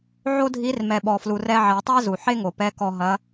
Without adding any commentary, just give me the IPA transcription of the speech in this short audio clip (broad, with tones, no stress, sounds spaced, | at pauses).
ʕ o˥ dʱ i˧˥ r m ɛ˩ ɓ ɔ˩ f l u˩ r ɛ˧ ʕ ɛ˩˧ tˤ æ˥ z u˩ ħ e˥ ŋ o˩ p ɛ˧˥ k ɔ˧ ɦ ɐ˧˥